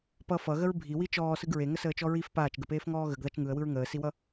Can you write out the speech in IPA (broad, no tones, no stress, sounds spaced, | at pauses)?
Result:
p ʌ f ʌ ɣ ə ɹ bʱ i w i t͡ʃ ɔː s ɯ ɡ ɹ e ŋ ə s əː t͡ʃ ɔ ɹ i f p aː t͡ʃ ɡ ə p eː f ŋ ɔː ɣ ə ɡ ð a t͡ʃ ŋ ɯ ə̯ w ɯ ɹ ŋ əː s i w ʌ